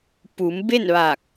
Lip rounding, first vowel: rounded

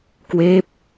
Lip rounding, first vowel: unrounded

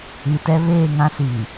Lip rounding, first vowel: unrounded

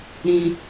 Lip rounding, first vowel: unrounded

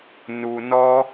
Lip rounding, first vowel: rounded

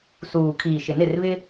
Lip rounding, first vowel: rounded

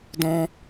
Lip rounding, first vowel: rounded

